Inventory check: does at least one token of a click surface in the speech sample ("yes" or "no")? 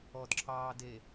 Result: yes